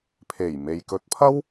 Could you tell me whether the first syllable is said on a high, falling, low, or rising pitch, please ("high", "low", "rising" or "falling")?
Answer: low